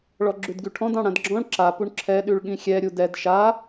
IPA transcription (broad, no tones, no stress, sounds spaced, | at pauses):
ɭ ɔ ɡ͡ǁ ʉ d ɡ y ʈʰ ɔ̃ d ɑ̃ ɽ ã d ɡ͡ǁ ɔ̃ ɭ ǁ a p u ɳ ǁʰ ɛ ɗ y ɭ ɠ ĩ xʲ ɛ ɾʲ u d ɛ d ʃ a